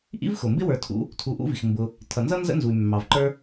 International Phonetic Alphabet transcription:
ʔ ḭ˥ v x ʊ˩ m b ɪ˥ w ə˞˨ tʰ ṵ˦ | tʰ u˨ ʔ ṵ˦ v i˩ x m b ʊ˨ | tʰ ʌ˩ n z ʌ˥ n z ə̰˥ n z u˩ y̯ mː ɑ˩ v ǃ ə˞˦

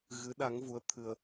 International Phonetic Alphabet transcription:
ɣ ɨ˨˦ ɗ a˨˦ ŋ v u˨˦ ə̯ t̪ʰ ɨ˧ ə̯

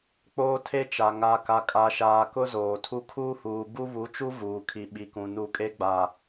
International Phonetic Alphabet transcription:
k͡p oː˦ tʰ e˦ t͡ʃ a˨ ŋ a˨ k a˨ kʼ a˨ ʃ aː˨ k ʊ˦ z oː˨ tʰ u˦ kʰ uː˦ h uː˨ b u˦ β u˨˦ t͡ʃ u˦ v uː˨ kʰ i˨ ɓ i˨ k ũ˨ n u˨ kʼ e˦ ɡ͡b a˨

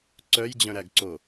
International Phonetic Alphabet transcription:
ǀ œ j d͡ʑ œ̃ ɾ æ ɡ ǀ o

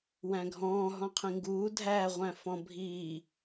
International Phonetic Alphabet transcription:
w æ̃ ɡʱ ɔ̃ː ɦ ɔ̃ qʰ ĩ ŋ ɡ uː dʱ æː ʁʷ æ̃ f ɔ̃ bʱ iː

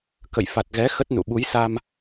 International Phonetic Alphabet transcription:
k ə̰˧˨ j f a˨˩ t̚ ɣ ɛ˨˦ x ə˦˥ t̚ n ṵ˧˨ ɓ u˨˦ j s a˧ m

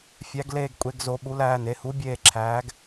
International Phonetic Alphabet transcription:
fʲ æ˩˧ ɡ l eː˧˩ ɡ kʷʼ e˩˧ ɡ z o˩˧ ɓ u˩˧ l æː˩˧˩ n e˩˧ h u˩˥ bʲ eː˧˩ ǁʰ æː˩˧ ɡ

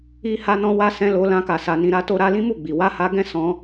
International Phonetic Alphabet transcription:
i˧ h a˧ n ɔ̃˧ w a˧ s ɛ̃˧ l o˧ l ã˦ k a˧ s a˧ n ĩ˧ ɾ a˦ t o˦ ɾ a˦ l ĩ˦ m u˦˨ ɡ͡b i˨ w a˧ h a˧ ɡ ɛ̃˦ s ɔ̃˧

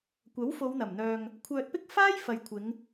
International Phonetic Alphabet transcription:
kʷ ɐ˨˥ w f o˨˧ w n̪ ɐ˨˩ m n̪ œː˨ ŋ | kʷʰ œː˧ t̚ p ɪ˥ k̚ f aː˥ j f ɐ˨ j kʷʰ ɪ˨˧ ŋ

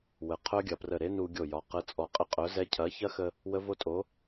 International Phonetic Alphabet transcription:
w ə˩˧ qʰ œ˦˥ ɡʲ ɐ˩˧ p r ə˧˩ ɾ e˦˥ n u˧ ɡʲ o˧˩ j ɒ˩˧ q ə˨˥ t͡sʼ ɔ˧˩ qʼ ə˦˥ qʼ œ˨˥ z ɛ˦˥ cʰ ɐ˨˥ ç ɐ˦˥ x ə˧ | w ə˦˥ v o˦˥ tʼ o˨˥

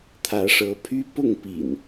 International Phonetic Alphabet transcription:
t̪ʰ ä˨˦ ʂ ɤ˨˦ pʰ y˦ p ʊ˥˨ ŋ p ḭ˨˩ n

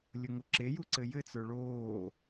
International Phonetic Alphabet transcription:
lʲ ʊ ŋ o ǁ e j u ǀ ɘ j ɘ t͡s ə˞ ɭ oː

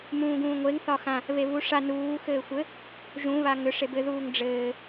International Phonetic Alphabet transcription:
m ũː ɡ ũː ŋʷ e ŋ θ ɒ x ã | β e β u ʂ a n uː x ɘː xʷ ɘ | ʒ ũ β a ŋ ʏ ʂ e b ɘ ð uː ŋ ɖ͡ʐ ɘː

